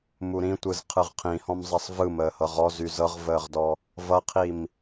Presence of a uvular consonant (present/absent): present